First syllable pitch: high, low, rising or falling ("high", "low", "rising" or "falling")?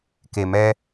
low